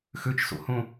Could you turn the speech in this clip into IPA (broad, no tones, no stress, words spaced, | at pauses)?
xøt͡ʃso̰hõ